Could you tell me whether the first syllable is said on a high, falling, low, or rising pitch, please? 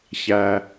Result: low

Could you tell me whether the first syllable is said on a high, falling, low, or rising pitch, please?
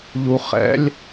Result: high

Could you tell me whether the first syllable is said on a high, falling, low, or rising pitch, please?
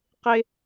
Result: high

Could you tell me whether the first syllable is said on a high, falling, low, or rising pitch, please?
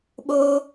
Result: high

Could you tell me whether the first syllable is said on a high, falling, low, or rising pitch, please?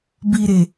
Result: low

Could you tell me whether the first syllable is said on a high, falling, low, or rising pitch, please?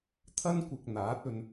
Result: high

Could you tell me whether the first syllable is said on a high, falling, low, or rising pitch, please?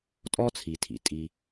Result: high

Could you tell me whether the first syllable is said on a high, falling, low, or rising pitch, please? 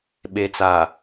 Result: low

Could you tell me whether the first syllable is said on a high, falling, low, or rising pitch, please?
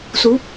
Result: rising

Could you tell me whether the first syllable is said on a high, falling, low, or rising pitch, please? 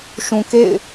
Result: low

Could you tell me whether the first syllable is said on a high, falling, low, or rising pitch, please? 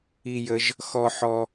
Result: low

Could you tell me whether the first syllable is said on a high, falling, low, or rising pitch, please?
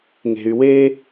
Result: low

